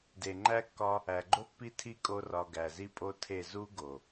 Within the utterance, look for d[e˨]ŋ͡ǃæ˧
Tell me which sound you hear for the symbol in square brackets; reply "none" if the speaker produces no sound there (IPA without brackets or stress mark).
e˨